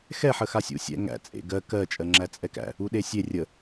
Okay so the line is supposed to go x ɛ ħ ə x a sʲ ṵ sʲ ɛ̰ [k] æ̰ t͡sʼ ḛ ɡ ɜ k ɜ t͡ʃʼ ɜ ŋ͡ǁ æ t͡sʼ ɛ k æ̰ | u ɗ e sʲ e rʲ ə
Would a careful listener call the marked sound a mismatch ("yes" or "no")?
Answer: yes